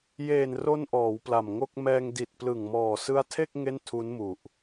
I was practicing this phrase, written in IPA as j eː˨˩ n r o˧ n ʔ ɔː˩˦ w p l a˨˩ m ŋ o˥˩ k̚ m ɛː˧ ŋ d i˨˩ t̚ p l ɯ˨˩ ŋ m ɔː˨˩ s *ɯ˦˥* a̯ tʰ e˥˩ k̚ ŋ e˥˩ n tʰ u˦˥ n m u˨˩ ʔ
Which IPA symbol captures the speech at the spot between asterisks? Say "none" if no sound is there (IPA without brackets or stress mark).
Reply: ɯ˦˥